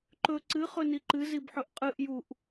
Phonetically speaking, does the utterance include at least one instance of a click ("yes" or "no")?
yes